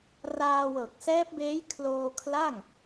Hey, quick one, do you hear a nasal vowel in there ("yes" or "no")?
no